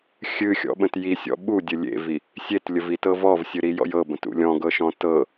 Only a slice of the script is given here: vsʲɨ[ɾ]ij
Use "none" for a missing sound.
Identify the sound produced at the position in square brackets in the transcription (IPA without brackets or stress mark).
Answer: ɾ